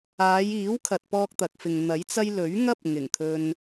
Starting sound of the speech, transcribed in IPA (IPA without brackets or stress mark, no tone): aː